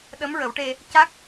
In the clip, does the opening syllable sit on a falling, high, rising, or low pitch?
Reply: rising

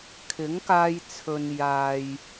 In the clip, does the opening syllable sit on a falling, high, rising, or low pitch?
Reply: rising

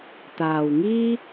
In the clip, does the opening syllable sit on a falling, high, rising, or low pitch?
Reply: low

